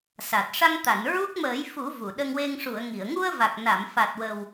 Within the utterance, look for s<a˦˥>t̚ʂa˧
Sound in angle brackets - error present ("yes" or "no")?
yes